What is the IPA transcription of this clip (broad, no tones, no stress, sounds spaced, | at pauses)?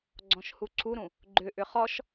ɡ͡ǀ ɔ̃ ʃ h u ǀʰ u ɾ ũ | ɡ͡ǃ ʏ ʔ ʏ χ ɔ ʃ